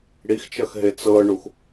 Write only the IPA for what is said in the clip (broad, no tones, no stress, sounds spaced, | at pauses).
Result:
ɽ i x t͡ʃ ɐ x ɦ e t͡s ɤ ɳ u x